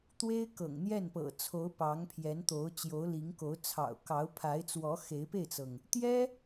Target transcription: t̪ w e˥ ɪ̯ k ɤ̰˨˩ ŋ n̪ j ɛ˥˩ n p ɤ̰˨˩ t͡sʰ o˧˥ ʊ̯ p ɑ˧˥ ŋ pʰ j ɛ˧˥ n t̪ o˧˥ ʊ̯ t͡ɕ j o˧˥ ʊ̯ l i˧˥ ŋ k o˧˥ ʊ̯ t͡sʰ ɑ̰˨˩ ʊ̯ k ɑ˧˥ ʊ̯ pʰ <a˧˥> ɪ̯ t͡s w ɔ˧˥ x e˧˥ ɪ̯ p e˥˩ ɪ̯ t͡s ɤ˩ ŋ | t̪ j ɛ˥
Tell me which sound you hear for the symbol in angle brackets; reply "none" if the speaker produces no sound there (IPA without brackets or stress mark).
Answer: a˧˥